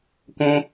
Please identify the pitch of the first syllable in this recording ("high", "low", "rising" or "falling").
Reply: low